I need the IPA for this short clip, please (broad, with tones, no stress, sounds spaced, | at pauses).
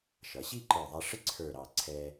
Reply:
ʃ ʌ˩˧ ɕ i˥˧ ǃ ə˞˧˩ ðˤ æ˧ ʂ ɪ˥ ǀʰ ə˞˧˩ ɾ ɑ˧˩ ǀʰ ɛ˧